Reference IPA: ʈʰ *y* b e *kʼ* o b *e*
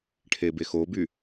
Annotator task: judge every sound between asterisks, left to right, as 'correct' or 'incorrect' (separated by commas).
incorrect, incorrect, incorrect